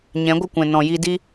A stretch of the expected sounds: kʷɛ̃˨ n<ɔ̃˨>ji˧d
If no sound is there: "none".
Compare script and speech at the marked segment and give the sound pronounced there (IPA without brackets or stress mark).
ɔ̃˨